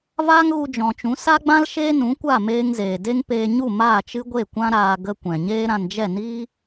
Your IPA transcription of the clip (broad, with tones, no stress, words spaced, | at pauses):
vaː˦ŋɣu˧d͡ʒɔ̃˨t͡ʃũ˨˦ sa˦ɡ͡bã˦l ʃeː˦nũ˨˦kʷa˦˨ meː˦ŋzeː˨ de˦ŋ peː˧ɲu˦˨ maː˦˨t͡ʃɨ˦ɡʷe˦˨ kʷã˦ɾaː˧ ɡə˧ kʷɛ̃˨ɲeː˦ɾã˧nd͡ʒɛ˦˨ niː˦